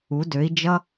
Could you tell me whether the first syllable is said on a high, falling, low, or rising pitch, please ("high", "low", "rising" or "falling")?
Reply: rising